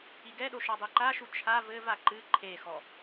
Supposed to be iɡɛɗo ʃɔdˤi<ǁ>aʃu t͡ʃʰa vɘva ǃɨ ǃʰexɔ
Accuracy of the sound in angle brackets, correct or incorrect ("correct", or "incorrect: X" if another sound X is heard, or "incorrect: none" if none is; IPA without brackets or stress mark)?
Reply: incorrect: ǃ